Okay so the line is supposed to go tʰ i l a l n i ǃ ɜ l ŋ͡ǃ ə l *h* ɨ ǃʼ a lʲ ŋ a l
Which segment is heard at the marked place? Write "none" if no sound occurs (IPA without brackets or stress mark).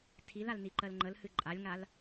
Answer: h